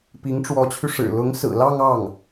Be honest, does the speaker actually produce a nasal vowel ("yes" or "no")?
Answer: no